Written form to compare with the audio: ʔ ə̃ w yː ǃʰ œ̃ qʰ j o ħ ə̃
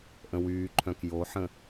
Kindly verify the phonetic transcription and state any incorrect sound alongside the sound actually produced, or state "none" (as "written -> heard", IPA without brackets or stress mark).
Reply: qʰ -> k